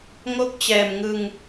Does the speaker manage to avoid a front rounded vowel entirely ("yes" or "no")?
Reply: yes